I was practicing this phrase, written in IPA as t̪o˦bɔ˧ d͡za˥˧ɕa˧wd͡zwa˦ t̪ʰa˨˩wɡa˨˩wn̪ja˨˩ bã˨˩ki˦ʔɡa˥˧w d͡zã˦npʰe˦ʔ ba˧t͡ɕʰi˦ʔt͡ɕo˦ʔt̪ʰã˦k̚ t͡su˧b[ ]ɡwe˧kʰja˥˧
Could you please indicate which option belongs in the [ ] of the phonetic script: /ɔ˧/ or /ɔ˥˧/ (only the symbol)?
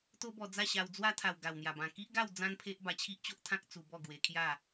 ɔ˥˧